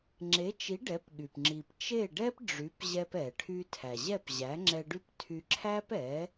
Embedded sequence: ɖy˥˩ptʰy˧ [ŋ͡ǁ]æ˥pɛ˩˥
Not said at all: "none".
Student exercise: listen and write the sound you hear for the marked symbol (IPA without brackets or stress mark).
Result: ǁʰ